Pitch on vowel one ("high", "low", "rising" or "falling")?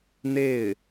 falling